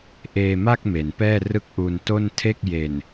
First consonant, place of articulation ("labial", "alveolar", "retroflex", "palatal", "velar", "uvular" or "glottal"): glottal